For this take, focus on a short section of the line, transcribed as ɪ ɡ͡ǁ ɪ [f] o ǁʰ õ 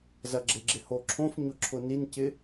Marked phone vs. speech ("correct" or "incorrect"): incorrect